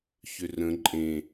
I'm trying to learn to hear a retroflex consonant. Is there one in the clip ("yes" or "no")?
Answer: no